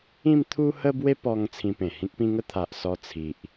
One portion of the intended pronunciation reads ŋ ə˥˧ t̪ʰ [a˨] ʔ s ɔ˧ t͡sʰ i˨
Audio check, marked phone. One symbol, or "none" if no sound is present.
a˨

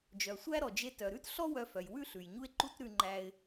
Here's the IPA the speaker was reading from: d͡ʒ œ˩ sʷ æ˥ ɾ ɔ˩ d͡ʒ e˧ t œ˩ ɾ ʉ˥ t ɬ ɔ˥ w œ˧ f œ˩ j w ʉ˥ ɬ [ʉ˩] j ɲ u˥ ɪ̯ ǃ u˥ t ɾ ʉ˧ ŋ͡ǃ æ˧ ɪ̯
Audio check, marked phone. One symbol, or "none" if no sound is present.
ʉ˩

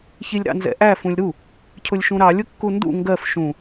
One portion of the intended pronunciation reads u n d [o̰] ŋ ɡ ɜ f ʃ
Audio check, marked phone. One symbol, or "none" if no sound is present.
ṵ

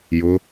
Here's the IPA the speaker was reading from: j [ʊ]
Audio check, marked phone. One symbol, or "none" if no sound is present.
ʊ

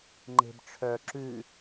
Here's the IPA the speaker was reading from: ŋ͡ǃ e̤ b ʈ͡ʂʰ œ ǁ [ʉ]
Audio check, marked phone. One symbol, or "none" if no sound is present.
ʉ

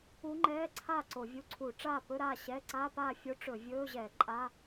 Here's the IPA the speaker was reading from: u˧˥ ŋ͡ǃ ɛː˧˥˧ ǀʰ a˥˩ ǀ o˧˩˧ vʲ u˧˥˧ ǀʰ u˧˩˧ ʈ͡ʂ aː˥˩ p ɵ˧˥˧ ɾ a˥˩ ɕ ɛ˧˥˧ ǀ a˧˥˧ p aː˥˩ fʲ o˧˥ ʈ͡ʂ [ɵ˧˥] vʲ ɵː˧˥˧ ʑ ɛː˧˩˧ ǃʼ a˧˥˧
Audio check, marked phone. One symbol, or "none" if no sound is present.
ɵ˧˩˧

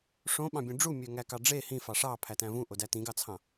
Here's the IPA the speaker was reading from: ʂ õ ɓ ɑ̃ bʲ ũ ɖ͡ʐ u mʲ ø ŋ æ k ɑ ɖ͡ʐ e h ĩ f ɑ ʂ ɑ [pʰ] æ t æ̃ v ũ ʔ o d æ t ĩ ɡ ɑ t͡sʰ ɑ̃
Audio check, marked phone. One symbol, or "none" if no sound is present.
pʰ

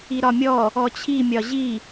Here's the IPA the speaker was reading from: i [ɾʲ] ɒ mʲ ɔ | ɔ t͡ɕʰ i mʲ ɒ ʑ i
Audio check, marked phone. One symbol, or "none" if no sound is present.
ɾ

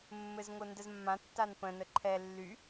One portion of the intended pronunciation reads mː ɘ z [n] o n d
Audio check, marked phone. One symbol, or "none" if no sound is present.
ŋ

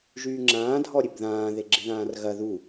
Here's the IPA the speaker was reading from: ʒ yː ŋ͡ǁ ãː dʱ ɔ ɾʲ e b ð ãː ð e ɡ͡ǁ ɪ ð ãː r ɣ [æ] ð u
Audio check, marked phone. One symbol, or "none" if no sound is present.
ɐ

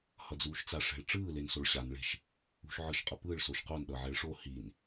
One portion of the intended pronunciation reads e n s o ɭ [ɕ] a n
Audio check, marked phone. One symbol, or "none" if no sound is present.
ɕ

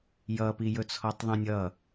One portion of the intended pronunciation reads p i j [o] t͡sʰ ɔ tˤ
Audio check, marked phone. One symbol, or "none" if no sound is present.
ɵ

